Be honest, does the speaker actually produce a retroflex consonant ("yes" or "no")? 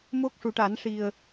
yes